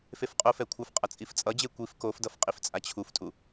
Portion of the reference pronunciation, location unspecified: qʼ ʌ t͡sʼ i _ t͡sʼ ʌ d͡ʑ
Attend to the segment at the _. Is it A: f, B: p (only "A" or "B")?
A